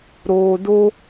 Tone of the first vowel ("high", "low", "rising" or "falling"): low